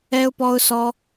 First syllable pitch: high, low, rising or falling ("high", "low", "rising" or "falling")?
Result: high